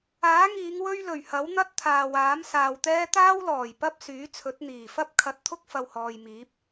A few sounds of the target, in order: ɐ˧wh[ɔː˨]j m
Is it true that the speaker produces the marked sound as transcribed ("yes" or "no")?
yes